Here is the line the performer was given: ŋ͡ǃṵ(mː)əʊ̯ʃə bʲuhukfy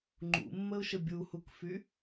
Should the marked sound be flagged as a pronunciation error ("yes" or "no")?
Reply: no